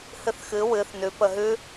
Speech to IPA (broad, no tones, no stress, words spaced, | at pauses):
hɨθxɨ wɨθ nʉpə ɦʉ